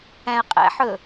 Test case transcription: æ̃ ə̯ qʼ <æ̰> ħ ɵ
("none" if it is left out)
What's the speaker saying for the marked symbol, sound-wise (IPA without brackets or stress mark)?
æ̰